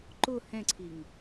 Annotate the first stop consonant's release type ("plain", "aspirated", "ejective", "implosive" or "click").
click